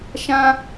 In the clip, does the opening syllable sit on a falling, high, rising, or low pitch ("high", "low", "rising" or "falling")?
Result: high